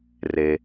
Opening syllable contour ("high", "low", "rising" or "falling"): low